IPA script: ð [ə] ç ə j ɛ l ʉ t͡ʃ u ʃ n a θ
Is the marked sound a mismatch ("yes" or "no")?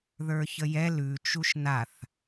yes